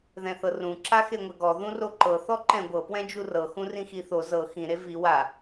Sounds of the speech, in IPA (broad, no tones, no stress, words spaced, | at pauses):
ðɛ̃θɤrũ ǁaxeŋʷɛɡɔ ðũroǃɤ θɔǃɛ̃ɡʷɤ pwɛ̃d͡ʒurɤ xũrĩxiθo zɤ xĩ ɾevi wa